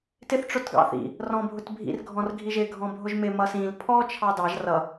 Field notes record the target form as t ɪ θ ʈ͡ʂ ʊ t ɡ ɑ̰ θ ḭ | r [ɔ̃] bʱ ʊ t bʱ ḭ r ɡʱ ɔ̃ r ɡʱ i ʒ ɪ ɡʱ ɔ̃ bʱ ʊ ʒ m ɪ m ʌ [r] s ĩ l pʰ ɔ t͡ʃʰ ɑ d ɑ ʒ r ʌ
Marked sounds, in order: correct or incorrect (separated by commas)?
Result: correct, incorrect